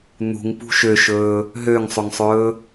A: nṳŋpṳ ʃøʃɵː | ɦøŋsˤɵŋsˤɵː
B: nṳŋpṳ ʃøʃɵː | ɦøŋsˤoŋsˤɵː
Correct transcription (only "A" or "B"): A